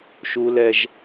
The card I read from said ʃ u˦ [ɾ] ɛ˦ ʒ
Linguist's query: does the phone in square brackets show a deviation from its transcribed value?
yes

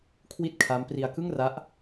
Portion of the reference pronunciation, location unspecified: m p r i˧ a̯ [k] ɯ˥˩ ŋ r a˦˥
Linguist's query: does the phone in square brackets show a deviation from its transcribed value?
no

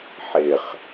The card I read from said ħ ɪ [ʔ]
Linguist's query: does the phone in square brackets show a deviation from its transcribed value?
yes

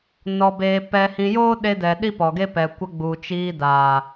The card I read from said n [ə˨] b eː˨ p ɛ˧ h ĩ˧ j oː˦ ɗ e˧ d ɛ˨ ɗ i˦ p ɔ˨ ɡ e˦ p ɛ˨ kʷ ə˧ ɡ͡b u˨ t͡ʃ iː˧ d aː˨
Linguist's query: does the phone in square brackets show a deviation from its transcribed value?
yes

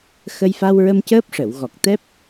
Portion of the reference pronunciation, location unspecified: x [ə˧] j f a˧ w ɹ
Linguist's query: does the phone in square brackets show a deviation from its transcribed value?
no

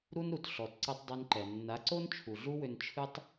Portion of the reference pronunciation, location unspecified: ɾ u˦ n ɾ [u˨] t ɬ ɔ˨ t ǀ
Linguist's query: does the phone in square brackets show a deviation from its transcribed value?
no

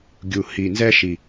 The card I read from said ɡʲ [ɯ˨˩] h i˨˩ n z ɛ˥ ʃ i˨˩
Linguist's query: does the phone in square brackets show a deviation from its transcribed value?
yes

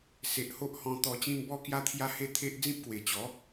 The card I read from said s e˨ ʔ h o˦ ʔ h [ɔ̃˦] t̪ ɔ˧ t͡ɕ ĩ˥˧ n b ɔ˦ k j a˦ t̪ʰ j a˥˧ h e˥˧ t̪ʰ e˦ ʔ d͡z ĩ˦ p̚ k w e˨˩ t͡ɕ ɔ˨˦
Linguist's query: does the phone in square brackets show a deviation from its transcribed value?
yes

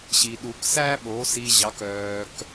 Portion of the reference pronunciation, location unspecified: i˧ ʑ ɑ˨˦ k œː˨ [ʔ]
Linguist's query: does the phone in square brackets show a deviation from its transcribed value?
yes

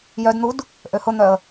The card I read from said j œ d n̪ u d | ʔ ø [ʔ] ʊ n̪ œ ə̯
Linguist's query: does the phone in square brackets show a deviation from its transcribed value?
yes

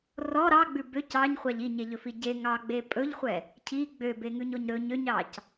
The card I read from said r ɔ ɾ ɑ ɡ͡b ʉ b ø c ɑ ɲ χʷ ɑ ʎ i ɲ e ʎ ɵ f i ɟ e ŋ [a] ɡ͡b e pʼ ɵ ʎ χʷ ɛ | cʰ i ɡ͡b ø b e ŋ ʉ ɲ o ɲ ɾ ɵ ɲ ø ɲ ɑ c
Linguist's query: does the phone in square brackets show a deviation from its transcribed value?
yes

